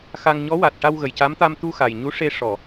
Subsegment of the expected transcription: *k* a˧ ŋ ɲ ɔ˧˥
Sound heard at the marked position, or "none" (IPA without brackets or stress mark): x